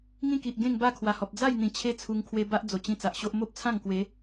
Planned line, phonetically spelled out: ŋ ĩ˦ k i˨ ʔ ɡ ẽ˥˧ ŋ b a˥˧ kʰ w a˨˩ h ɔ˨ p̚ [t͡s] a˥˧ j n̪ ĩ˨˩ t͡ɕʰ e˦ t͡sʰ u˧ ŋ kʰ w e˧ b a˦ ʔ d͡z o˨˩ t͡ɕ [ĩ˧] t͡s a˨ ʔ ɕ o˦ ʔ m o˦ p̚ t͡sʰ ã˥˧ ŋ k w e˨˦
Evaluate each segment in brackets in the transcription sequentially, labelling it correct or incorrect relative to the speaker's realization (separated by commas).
incorrect, correct